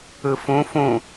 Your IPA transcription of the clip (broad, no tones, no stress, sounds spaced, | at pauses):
ɯ f ũ f ũ